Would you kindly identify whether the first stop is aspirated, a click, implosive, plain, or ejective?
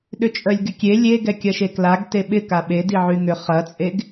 implosive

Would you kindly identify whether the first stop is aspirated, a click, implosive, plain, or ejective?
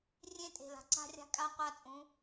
ejective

